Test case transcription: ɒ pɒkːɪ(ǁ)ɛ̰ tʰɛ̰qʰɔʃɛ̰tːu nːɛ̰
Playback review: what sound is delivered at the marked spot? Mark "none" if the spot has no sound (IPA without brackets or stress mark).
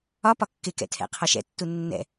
k